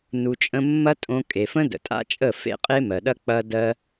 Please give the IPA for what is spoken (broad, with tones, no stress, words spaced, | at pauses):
nu˧t͡ʃʼə̃˦ mːɐ˦tʼõ˧ kʼe˨fə̃˦ də̰˨tʼa̰˦t͡ʃʼə˦˨ fḛ˦qʼe˦mɜ˨ɗɐ˦ k͡pɐ˦ dɜ˧